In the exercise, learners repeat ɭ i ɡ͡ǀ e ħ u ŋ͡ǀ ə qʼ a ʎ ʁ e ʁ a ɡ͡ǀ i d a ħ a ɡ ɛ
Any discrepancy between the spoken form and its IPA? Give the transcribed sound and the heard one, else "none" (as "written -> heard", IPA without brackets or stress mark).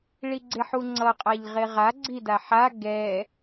ə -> ʌ